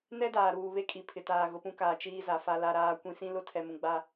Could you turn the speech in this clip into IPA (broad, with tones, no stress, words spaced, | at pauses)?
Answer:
nɛ˦daː˨ɾuː˨ βe˦kʼi˨pʰɪ˨taː˨ ɣʊ˨pũ˦kaː˨ t͡ʃiː˦za˨fa˦ la˦ɾaː˦kʷĩ˦ sĩ˦lʊ˦ tʰɛ˨mũ˨ɡ͡ba˦